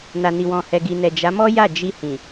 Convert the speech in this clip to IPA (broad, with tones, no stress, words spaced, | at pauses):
na˨ ni˨wɔ̃˨hɛ˨ ɡi˨nɛ˨ d͡ʒa˨˦mɔ˦ ja˦˨d͡ʒi˧hĩ˨